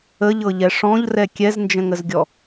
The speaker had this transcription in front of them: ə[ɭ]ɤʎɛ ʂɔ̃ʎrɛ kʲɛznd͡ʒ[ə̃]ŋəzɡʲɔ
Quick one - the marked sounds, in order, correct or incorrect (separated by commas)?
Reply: incorrect, correct